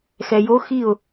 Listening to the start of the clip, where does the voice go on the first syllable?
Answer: low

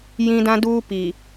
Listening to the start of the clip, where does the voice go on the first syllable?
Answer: high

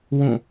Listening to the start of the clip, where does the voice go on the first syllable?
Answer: falling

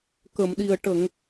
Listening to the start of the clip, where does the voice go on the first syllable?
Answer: low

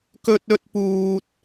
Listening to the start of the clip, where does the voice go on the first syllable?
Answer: high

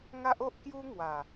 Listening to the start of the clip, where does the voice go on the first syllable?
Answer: high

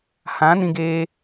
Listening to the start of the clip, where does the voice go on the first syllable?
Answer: rising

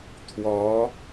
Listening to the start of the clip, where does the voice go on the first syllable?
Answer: rising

